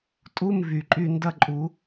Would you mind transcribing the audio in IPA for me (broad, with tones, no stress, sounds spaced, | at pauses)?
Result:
tʼ u˧˥˧ m v y˨˩ ǃʼ y˥˧ n d ɐ˥˧ ǃʼ u˨˩˦